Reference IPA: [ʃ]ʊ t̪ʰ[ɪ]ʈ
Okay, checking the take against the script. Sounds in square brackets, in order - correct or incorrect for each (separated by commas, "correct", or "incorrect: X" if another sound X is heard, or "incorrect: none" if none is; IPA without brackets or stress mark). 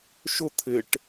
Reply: correct, correct